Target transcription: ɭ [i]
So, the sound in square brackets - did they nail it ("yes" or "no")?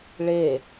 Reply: no